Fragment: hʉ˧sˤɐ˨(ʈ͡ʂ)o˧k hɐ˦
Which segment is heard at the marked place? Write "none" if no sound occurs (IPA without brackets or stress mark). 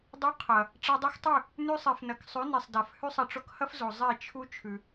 ʈ͡ʂ